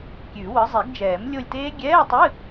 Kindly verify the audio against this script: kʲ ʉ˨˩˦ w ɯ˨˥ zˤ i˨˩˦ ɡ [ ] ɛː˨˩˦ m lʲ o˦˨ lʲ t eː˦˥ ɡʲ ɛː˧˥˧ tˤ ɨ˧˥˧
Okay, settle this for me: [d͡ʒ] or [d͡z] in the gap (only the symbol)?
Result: d͡ʒ